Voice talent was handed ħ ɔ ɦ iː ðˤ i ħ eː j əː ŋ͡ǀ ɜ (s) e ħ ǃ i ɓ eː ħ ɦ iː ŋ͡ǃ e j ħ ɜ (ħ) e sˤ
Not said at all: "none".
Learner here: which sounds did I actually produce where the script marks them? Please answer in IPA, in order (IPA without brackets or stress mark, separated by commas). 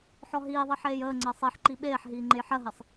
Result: sˤ, ɦ